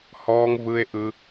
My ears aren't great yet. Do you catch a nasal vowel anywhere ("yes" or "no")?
no